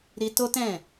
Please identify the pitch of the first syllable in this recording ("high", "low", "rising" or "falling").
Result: high